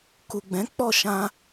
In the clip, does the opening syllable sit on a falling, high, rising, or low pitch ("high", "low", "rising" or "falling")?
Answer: low